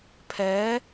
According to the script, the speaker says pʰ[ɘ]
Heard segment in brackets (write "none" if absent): ɛ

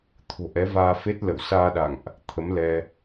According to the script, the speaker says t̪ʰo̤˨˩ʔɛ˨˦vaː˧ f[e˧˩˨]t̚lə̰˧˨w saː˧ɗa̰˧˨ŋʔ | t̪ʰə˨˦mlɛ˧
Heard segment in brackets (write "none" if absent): e˦˥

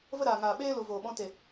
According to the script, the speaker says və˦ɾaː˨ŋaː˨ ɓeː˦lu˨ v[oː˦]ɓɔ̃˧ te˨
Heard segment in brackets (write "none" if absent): oː˨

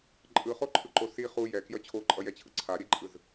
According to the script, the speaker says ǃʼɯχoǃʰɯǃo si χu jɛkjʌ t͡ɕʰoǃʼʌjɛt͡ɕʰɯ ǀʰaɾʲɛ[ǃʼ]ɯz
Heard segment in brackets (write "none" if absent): ǃʼ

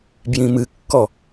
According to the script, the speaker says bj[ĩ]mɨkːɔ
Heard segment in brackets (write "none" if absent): ĩ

